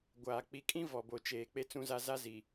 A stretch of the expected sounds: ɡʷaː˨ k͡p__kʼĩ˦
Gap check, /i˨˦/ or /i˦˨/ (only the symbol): i˨˦